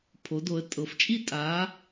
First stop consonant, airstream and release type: aspirated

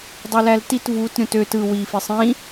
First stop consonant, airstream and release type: plain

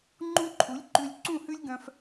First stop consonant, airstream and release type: click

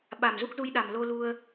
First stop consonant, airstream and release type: implosive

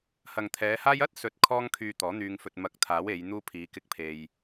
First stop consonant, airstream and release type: aspirated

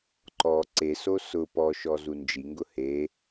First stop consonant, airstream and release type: click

